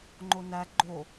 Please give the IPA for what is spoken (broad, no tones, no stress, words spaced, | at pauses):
ŋ͡ǃonæ ɡ͡ǃo